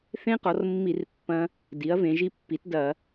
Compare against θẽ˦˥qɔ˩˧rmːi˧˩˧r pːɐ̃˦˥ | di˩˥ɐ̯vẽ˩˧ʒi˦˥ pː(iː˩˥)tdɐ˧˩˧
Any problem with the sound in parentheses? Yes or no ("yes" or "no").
yes